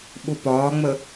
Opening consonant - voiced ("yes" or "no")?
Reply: yes